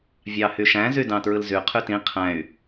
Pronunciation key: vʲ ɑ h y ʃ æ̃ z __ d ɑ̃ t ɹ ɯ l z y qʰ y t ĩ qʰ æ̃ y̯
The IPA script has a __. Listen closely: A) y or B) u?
A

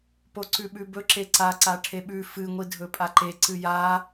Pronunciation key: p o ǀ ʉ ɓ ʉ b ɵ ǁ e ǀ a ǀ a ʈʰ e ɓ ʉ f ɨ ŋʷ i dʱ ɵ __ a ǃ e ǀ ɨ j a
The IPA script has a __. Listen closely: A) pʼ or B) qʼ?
A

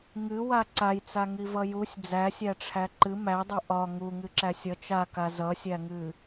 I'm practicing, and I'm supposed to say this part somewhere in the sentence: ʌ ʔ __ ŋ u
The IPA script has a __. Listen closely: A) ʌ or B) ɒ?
B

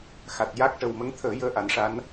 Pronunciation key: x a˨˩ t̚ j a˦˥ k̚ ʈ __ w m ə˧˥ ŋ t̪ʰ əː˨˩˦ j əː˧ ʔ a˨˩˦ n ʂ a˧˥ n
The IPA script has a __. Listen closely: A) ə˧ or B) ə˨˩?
B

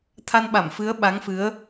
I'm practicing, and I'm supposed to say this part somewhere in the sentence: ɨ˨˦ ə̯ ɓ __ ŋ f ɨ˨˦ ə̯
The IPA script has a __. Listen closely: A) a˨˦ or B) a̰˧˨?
A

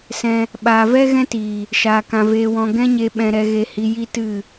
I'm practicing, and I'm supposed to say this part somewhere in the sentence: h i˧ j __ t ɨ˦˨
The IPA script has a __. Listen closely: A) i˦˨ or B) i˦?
B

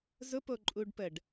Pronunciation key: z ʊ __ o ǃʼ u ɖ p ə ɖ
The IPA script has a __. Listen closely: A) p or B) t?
A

